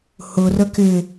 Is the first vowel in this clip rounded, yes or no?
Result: yes